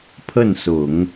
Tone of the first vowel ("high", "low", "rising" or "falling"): falling